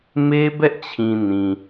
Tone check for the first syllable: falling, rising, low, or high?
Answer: high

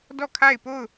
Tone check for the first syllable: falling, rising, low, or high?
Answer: falling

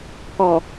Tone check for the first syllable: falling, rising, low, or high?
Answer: low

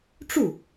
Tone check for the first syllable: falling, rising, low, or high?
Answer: falling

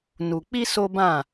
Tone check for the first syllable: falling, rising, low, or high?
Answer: low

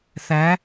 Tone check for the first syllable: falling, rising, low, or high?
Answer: rising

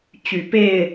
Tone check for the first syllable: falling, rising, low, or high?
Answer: low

